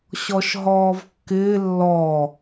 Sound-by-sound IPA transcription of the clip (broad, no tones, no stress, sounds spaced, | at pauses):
ɕ ɔ ʃ ɦ ɔː v kː ɪː lː ɔ